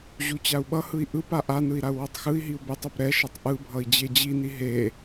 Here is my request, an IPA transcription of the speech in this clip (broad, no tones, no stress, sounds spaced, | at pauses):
ʑ u t͡ɕ a u̯ ɓ ʌ h ɯ i̯ ʔ ɯ p a ʔ a n ɯ i̯ ɾ a u̯ w o tˤ x ɯ i̯ ɦ i u̯ b e tˤ o p ɾ ɛ ʃ ʌ tˤ ʔ ɯ bʱ ʌ i̯ d͡ʑ e d͡ʑ i n i ɦ e